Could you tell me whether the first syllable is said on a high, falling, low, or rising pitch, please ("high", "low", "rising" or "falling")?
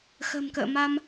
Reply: low